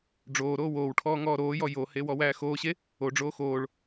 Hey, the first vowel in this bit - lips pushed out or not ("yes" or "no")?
yes